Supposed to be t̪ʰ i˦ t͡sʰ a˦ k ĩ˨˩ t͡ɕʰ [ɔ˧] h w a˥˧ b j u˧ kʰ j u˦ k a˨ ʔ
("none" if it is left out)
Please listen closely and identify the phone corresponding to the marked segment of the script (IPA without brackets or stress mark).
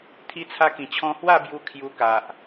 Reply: ɔ̃˧